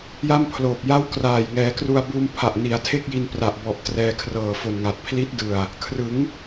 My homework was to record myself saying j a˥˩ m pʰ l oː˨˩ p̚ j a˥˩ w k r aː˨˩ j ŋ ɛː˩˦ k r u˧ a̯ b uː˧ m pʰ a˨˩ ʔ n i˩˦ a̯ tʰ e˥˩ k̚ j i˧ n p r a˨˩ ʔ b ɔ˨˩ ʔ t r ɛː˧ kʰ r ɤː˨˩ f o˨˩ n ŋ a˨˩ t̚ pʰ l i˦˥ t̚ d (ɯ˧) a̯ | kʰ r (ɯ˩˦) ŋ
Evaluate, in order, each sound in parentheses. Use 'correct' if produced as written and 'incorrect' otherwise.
incorrect: ɯ˨˩, correct

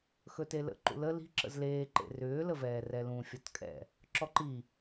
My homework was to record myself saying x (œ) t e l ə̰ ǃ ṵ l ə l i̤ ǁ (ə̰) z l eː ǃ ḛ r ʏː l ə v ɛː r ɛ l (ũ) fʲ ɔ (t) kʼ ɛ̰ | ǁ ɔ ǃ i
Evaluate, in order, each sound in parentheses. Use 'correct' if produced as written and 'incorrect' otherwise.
incorrect: ɵ, correct, correct, correct

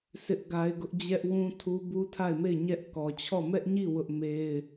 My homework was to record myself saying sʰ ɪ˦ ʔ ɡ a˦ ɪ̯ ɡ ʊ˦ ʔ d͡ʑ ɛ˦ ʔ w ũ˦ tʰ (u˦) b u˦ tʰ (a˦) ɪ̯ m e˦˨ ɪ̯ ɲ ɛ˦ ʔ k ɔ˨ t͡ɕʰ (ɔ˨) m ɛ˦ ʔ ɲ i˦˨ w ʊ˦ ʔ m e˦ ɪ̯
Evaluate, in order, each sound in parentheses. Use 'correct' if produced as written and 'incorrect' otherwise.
correct, incorrect: a˦˨, incorrect: ɔ˦˨

